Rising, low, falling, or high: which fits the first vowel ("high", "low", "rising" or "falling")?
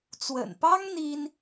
low